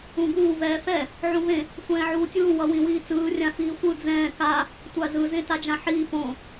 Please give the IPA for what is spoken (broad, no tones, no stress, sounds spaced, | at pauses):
ũ ɡ uː v ɛː f ɛ | ʕ ũ v ẽ | sʷ ɛ̃ː ʕ uː tʲ uː w ʌ w ĩ w iː t͡s ɯː rʲ ã f iː sʷ ɯ d͡z ɛ̃ː k a | tʷ a z ɯ z ẽ t a d͡ʒ ã ħ iː p õ